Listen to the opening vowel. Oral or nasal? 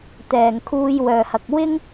oral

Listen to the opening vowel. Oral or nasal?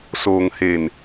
oral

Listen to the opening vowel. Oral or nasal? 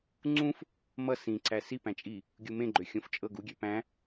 nasal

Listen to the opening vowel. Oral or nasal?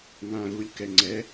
nasal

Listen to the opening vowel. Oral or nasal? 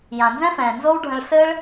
nasal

